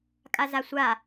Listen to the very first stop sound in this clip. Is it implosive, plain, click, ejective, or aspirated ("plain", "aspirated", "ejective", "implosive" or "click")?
ejective